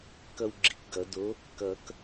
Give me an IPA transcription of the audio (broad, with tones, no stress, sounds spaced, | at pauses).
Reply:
k ʌ˦ w ɡ͡ǁ i˨˥ k ɡ ʌ˨˩˦ d o˨˥ | k ʌ˨˩˦ k